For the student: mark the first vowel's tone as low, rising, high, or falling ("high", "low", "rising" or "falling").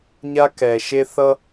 high